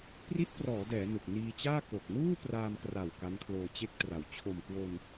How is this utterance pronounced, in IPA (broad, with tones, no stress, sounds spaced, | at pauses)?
p r i˦˥ t̚ p r ɔː˩˦ d ɛː˩˦ n ɯ˨˩ k̚ n iː˧ t͡ɕ aː˥˩ k o˨˩ k̚ n uː˥˩ p r aː˧ m k r a˨˩ w k a˦˥ n kʰ l oː˧ t͡ɕ e˥˩ k̚ t r a˨˩ w t͡ɕʰ o˨˩ m k w o˧ n